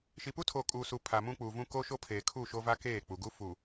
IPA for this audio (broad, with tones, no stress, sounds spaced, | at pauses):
ʃ i˨ p u˦ tʰ o˨ kʼ uː˨ s uː˨ pʰ a˨ m ũ˦ k͡p uː˨ v ũ˦ k o˦ ʃ o˦ pʰ eː˨ kʰ u˦˨ ʃ o˦ v a˦ k eː˦˨ k͡p u˨ ɡ u˦ f uː˨